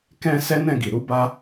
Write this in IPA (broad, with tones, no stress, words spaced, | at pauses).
kɛ̃˦ sɛ˦nɛ̃˦˨ɡi˨ ɾu˧ba˦